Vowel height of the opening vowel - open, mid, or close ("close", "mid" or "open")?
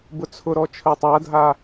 close